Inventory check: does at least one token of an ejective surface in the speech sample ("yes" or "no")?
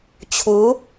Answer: no